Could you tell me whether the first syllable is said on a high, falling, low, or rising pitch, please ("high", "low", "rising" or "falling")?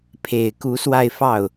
low